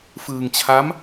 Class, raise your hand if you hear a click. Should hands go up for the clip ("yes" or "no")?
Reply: no